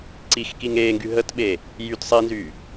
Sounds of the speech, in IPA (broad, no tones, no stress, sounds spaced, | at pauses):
ǀ i x k i ŋ eː ŋ ɡ y ɦ ə t ɓ eː | j y t sˤ i n z yː